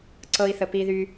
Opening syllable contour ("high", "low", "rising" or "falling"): high